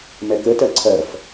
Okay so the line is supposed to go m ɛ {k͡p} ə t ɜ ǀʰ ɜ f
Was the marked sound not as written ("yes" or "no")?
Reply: yes